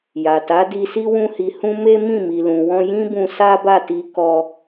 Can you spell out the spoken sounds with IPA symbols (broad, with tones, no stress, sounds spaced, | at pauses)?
j a˨ t a˨˦ d i˧ s i˦ w ũ˦ h i˧ h ũ˦ m e˦ m ĩ˦˨ m i˨ l ũ˨ w ɔ̃˧ j ĩ˦ b ũ˧ s a˦ b a˦˨ t i˧ k ɔ˧